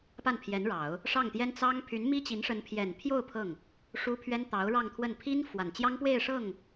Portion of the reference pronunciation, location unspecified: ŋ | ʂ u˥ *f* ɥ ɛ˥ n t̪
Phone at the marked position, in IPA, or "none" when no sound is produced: pʰ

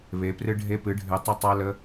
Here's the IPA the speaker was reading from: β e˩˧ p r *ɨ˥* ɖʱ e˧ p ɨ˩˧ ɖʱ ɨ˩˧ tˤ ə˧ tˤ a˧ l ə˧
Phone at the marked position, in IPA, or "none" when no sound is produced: ɨ˧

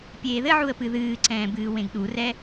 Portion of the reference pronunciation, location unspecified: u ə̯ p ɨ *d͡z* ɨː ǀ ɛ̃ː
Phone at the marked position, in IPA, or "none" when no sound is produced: ð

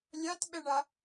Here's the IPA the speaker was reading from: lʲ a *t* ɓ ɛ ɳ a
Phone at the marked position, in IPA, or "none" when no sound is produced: t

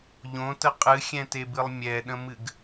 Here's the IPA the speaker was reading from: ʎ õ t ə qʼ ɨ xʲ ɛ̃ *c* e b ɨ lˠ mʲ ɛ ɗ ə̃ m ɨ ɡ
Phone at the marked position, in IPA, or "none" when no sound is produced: t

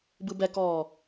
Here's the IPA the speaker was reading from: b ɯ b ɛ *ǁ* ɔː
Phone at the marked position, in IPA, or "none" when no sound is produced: k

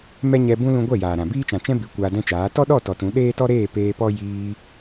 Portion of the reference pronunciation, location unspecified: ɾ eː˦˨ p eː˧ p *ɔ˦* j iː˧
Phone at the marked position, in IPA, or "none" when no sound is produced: ɔ˦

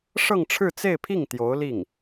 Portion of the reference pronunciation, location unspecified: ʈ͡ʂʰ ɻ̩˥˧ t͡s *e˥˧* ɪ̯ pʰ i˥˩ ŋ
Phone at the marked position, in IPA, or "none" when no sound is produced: e˥˧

